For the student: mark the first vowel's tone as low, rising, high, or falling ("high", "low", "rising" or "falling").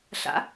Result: rising